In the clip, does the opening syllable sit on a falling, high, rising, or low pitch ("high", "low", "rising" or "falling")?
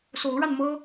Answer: rising